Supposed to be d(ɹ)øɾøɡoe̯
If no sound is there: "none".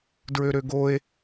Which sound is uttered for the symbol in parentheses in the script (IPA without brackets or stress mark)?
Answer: ɹ